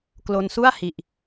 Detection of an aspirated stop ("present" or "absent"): absent